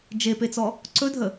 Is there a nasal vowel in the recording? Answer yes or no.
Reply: no